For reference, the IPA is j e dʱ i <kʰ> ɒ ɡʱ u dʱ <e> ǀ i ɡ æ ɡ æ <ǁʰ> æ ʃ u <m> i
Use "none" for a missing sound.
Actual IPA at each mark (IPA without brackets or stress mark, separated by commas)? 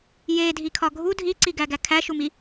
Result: kʰ, i, kʰ, m